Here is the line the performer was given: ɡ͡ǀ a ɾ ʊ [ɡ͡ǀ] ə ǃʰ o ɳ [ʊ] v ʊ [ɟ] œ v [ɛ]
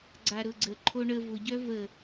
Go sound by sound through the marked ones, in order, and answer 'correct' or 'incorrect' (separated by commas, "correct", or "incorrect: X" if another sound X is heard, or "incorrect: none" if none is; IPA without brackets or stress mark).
correct, incorrect: ə, correct, incorrect: ə